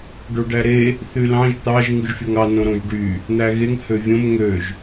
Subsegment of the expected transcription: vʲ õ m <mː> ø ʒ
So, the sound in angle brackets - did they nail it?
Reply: no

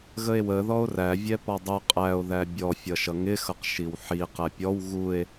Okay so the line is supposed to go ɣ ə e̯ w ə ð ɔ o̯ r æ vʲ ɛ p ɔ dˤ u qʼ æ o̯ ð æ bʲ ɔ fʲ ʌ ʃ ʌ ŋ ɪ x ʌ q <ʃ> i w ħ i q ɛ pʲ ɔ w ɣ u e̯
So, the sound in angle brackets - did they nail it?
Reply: yes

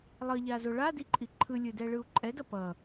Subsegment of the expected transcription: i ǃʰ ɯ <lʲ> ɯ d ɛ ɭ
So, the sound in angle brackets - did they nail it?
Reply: yes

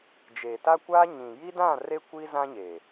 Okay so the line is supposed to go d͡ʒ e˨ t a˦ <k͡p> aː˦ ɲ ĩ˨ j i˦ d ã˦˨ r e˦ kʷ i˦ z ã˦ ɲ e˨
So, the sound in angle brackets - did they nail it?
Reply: no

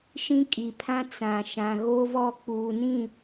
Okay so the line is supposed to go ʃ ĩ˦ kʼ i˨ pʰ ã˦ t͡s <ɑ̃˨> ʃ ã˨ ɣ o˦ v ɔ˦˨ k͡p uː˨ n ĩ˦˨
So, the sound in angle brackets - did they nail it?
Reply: no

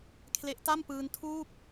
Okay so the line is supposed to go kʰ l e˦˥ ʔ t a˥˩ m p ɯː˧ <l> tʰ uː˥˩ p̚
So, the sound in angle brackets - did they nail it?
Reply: no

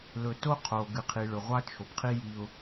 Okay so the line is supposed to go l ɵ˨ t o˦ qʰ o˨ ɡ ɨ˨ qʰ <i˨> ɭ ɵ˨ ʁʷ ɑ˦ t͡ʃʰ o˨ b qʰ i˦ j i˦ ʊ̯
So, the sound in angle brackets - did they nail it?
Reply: yes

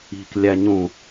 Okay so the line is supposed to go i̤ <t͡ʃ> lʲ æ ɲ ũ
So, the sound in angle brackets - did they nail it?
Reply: no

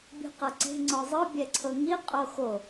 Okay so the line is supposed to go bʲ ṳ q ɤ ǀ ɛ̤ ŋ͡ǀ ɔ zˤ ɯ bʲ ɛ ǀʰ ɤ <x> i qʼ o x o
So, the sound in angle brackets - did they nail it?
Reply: no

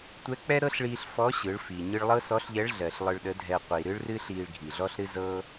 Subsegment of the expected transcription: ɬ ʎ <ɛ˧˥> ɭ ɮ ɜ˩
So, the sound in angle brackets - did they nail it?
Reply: yes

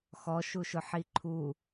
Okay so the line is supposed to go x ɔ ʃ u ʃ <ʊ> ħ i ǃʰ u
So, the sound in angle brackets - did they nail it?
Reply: yes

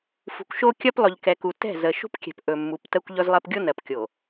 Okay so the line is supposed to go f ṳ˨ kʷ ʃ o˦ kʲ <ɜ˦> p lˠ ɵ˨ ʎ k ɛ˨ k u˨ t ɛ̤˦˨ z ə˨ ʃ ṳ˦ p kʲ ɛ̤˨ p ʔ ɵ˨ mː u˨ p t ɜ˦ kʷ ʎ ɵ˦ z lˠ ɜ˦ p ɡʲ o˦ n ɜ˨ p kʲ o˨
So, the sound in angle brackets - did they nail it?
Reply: yes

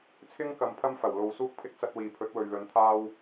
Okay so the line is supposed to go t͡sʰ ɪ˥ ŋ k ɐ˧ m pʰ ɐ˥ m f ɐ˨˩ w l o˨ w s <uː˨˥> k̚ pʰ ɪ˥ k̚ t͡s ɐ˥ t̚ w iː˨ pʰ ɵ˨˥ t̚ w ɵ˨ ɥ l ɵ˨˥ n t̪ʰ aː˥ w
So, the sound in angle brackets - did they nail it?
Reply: no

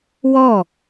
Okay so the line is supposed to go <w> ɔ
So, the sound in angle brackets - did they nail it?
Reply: yes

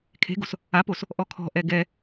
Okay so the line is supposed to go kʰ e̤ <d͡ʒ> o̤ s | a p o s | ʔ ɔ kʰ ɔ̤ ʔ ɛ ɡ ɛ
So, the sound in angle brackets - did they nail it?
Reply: no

